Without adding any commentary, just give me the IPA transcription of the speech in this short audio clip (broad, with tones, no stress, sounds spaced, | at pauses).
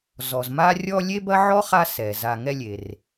z ɔ˨ z m a˥ rʲ ɔ˦ lʲ e˥ b ɐ˥ ʕ ɔ˥ χ a˦ s ɛ˩ z a˨ ŋ ɛ˦ lʲ e˩ r